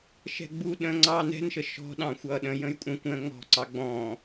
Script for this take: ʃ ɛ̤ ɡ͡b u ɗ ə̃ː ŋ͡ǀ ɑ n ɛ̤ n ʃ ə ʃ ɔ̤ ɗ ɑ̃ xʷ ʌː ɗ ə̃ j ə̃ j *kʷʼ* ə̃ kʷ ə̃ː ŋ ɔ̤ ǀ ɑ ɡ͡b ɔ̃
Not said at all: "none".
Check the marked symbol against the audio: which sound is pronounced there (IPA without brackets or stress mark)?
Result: kʷʼ